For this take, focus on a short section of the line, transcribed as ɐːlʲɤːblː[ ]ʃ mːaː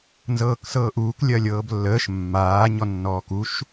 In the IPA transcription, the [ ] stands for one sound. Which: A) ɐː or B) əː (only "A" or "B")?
B